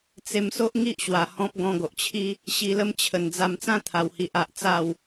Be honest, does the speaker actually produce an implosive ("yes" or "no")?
no